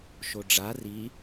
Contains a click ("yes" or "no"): no